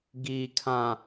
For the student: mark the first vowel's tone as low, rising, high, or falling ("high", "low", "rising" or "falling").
low